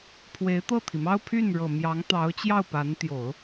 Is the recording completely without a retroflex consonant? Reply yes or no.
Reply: no